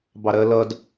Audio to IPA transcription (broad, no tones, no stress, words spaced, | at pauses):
bɑɾɜlʌd